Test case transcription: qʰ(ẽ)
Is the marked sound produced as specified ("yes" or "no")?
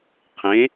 yes